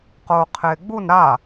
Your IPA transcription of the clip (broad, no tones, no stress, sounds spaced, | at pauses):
q oː qʰ ɪː ɡ͡b u n ɾ a